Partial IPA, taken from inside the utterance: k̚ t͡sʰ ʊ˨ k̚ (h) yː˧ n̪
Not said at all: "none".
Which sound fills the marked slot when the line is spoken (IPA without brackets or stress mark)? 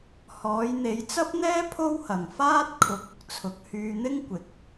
h